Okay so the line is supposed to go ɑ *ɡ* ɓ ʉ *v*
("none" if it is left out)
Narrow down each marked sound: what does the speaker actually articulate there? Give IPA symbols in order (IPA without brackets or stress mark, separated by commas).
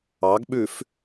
ɡ, f